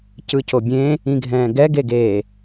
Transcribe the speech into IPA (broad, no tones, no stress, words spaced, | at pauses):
cɯcobʲẽ | ĩɡʱɛ̃ːɡɛ ɡeɡe